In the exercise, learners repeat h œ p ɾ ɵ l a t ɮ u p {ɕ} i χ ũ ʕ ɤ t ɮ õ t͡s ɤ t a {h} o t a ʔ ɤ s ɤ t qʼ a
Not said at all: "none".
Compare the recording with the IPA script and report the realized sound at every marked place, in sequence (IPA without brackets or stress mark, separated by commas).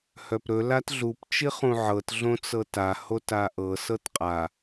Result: t͡ʃ, h